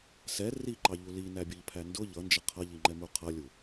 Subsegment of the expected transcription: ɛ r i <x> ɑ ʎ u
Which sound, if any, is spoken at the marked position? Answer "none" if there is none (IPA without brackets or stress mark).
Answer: ǃ